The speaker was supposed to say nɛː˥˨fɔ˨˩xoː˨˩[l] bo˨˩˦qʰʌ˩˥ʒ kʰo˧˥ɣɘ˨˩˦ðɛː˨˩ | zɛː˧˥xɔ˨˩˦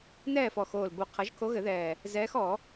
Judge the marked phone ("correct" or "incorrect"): correct